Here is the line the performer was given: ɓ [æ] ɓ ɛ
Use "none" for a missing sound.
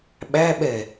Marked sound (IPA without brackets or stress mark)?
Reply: æ